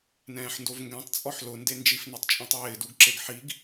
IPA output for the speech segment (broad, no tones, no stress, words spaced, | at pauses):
nɛ̃ːħndovŋɡɛ̃tˤ t͡sʼɔħlʊ ndend͡ʒifnɛtˤ t͡ʃʼĩtˤwɪːduɡǁeɡ ħiɡ